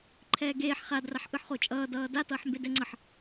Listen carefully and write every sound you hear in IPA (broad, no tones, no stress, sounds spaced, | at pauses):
ǃʰ ɛː ɡ eː ħ χ a d r a ħ ʔ ɯ ħ χ o t͡ʃʼ ʌː d ʌː d a t ʌː ħ m b e d ɛ ŋ͡ǀ ʌ ħ